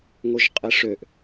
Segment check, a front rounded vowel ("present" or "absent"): present